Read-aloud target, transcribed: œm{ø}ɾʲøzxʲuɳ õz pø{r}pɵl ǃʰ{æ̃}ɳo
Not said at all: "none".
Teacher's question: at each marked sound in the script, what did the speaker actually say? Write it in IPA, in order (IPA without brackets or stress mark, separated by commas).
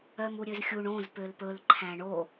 u, l, æ̃